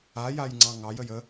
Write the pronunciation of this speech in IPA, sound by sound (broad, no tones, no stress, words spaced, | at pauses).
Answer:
ajajŋ͡ǀɑ̃ ŋɑjəj ə